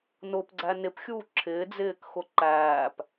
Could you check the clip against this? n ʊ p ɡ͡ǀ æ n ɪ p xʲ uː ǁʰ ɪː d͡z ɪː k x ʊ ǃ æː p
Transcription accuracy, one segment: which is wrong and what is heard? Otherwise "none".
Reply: none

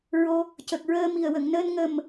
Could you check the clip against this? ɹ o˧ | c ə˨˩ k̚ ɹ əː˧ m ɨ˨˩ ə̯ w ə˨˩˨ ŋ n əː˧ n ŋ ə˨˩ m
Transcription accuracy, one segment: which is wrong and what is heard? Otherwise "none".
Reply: ɨ˨˩ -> i˨˩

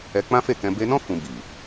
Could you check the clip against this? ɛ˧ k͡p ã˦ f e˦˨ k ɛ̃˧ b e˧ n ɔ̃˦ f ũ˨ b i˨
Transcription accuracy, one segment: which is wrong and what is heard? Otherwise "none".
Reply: ũ˨ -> ũ˧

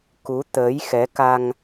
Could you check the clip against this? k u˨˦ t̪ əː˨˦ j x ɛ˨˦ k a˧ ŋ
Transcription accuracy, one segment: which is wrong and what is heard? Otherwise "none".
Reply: none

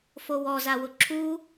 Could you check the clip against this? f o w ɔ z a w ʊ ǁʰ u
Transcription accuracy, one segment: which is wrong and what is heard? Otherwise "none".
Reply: none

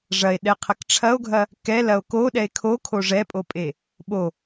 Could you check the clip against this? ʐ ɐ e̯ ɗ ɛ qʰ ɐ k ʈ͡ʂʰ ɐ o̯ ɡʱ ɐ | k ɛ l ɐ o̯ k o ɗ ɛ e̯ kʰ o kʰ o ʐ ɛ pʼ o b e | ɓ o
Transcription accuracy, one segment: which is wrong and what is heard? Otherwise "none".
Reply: b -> pʼ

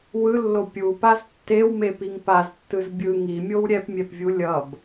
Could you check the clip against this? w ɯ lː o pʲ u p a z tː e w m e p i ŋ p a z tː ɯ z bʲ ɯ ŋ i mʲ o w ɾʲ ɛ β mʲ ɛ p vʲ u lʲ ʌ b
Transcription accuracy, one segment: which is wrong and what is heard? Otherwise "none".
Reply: β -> p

